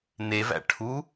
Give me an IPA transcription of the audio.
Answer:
n e v æ̰ ʈʰ u

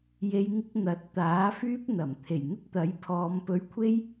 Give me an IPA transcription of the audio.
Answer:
j e˨˧ j ŋ ɪ˧ k̚ n̪ ɐ˨˥ t̚ t̪ aː˨˥ f yː˥ p̚ n̪ ɐ˨˩ m t̪ʰ e˨˩ j n̪ ɪ˥ k̚ t̪ ɐ˨˥ j pʰ ɔː˨˧ m p ɵ˧ ɥ kʷʰ e˥ j

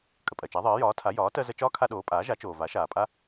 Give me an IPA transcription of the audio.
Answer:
kʼ ə˩ pʼ ɜ˩ t͡ʃ a˩˥ ðˤ ɜː˩˥ j ɒː˩˥ tʰ a˩˥ j ɒː˩˥ t ɜ˦ z ə˦ t͡ʃ ɒː˦ kʰ a˦ ɗ oː˩˥ pʼ aː˩˥ ʒ a˩˥ t͡ʃ oː˩ v a˩˥ ʃ aː˩ pʼ a˦

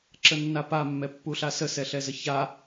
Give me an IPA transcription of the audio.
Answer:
ǁ ə nː a p a mː ɛ pː u ɬ a s ə s ɛ ɬ ɛ z ə ç a

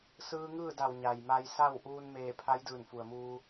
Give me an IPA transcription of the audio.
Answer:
s ɯː˧ ŋ ɯː˥˨ d a˧˩ w ɲ a˩ j m a˧ j s a˥˨ w ʔ uː˧ n m eː˧˩ pʰ a˧˥ j d ɯː˧˩ n f u˩ ə̯ m uː˧

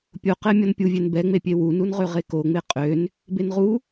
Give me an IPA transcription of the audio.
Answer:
pʲ o q ɛ mʲ ɔ n pʲ u vʲ ø n b ɛ ŋ͡m e pʲ e w u n u n ʁ ø ʁ e k o ŋ͡m e qʼ ø n | b e n ʁ u

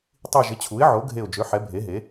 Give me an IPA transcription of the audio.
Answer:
tˤ i˧˩ ʒ ɪ˩˥ t͡ɕʰ u˩˥ ɪ̯ ʕ o˩˥ ɡʱ e˧˩ ʊ̯ d͡ʒ ø˩˥ ħ ɛ˩˥ bʱ e˩˥ ɦ e˩˥

